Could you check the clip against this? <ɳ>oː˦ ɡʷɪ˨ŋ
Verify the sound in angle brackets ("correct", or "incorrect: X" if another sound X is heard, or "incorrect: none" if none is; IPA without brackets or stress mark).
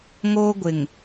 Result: incorrect: ŋ